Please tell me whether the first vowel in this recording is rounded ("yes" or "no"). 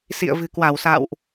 no